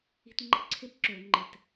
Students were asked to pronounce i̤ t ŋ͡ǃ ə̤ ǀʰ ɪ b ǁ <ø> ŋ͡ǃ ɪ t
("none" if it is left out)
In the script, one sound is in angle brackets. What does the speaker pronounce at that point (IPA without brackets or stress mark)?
ø